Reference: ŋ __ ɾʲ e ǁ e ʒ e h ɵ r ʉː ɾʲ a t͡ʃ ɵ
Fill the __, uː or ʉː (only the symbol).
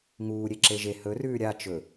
uː